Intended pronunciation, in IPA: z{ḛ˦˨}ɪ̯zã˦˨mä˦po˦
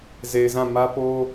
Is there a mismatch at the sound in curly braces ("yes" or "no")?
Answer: yes